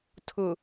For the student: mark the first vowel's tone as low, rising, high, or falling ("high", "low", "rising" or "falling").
low